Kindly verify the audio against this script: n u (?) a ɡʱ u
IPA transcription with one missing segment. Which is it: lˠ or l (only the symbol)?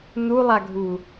lˠ